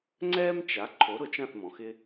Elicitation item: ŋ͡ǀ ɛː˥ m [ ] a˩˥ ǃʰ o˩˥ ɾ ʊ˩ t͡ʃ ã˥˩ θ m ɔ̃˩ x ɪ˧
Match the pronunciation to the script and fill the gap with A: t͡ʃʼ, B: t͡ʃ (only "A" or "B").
B